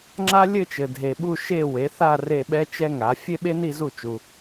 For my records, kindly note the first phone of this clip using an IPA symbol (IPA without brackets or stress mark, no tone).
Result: ŋ͡ǁ